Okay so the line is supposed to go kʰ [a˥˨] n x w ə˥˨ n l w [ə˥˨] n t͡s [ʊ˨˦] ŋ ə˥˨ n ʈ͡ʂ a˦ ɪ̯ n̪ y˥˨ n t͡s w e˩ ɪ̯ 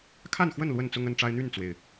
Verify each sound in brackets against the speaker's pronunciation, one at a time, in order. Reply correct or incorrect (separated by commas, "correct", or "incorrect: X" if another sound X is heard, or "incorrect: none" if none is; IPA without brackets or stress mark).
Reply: correct, correct, incorrect: ʊ˦